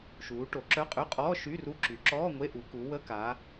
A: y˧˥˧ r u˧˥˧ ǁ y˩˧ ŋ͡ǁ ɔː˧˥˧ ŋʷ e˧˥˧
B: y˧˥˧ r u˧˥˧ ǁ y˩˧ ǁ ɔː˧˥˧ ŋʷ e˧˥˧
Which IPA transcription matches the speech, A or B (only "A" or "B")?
B